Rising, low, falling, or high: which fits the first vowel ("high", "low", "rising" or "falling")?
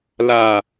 low